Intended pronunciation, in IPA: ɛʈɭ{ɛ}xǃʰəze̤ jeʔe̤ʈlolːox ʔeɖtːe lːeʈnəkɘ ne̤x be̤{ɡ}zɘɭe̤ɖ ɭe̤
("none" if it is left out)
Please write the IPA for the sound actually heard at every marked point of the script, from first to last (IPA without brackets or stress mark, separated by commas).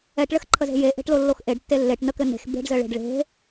ɘ, ɖ